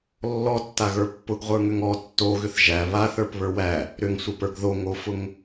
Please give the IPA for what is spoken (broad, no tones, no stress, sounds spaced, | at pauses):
lː ɔ tː a ɣ ə˞ pː ʊ ɡ ʁʷ ə˞ ŋ ʏ ŋ ɔ tː o ɣ ʏ θ ʒ æ β a θ ə˞ p β ə˞ w æ | ɾ ʏ ŋ sʷ ə˞ p ə˞ ɡ ð o ŋ o f ʊ ŋ